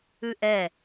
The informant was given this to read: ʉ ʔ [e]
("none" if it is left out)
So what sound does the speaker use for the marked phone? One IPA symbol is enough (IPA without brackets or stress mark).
ɛ